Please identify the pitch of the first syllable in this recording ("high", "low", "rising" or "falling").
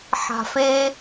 low